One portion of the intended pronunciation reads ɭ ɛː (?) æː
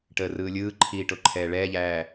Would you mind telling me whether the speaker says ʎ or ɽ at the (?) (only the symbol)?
ʎ